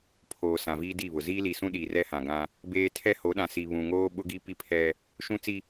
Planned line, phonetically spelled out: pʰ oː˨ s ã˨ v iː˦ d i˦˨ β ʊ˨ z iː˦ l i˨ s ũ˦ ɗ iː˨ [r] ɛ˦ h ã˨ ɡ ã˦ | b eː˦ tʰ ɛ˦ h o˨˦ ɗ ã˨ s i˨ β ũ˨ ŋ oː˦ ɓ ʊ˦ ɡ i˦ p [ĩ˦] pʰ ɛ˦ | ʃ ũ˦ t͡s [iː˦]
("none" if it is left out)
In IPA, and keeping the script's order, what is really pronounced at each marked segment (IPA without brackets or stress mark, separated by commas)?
r, i˦, i˦